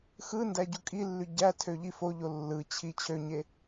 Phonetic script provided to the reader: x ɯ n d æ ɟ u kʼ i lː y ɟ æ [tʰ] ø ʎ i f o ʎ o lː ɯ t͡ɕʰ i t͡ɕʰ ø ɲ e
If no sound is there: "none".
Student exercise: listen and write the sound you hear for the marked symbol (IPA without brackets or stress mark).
tʰ